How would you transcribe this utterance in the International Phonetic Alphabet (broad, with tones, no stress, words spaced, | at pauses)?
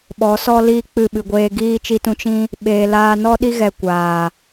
ɓɔ˨˦sɔ˦ liː˦k͡pɨ˦˨ɓɨ˧ɡʷeː˦ ɡiː˦ t͡ʃi˦tũ˦ t͡ʃĩ˦ | ɓeː˨laː˧nɔ˦ ɗi˦ ɣɛ˧ kʷaː˨